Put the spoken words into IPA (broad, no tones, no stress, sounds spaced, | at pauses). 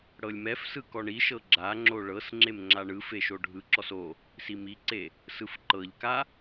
ɽ ɤ lʲ m ɛ f s ɯ k ɔ ɳ i ʃ ɤ ɡ͡ǁ a ŋ͡ǁ o ɭ ɤ s ŋ͡ǁ e m ŋ͡ǁ a ɳ ɯ f e ʃ o ɖʱ ɯ ǁ ɔ s o | s i m i ǀ e | s ɯ f ǃ ɤ ʎ k a